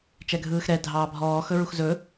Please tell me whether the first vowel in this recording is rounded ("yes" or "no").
no